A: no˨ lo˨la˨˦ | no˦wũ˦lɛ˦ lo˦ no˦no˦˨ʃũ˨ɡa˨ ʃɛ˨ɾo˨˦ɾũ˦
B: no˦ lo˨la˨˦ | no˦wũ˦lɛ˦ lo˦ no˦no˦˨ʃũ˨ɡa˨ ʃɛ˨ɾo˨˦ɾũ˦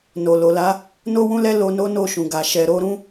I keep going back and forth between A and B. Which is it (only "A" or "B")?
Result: A